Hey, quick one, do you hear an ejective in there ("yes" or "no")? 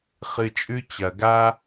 yes